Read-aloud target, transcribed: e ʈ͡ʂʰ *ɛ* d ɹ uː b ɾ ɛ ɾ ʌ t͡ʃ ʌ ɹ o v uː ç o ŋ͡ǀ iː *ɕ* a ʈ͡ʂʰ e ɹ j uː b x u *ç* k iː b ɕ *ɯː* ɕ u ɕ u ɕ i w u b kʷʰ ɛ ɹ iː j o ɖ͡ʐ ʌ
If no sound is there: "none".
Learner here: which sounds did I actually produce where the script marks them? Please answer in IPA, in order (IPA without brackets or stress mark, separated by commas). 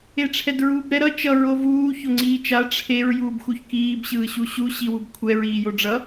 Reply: ɛ, t͡ʃ, ç, ɯː